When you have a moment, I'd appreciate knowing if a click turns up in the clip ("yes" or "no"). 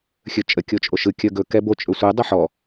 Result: no